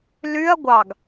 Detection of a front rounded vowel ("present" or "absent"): present